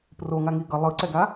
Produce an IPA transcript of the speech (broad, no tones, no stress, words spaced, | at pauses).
proŋaŋi ɡʌ lˠɯǀɛɡa